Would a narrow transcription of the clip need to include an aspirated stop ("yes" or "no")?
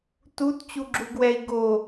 no